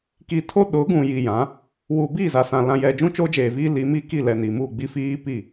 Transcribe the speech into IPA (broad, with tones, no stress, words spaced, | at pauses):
ki˨tʰo˦ ɗʊ˨˦ɡũ˨ ji˨jã˨˦ | wu˨biː˦˨za˨sã˨ lã˨jɛ˨ d͡ʒũ˦t͡ʃoː˦d͡ʒeː˨ viː˦ li˨˦miː˦ ki˦˨lɛ˨ ni˨mu˦˨ɡ͡bi˦ fiː˦ pi˦˨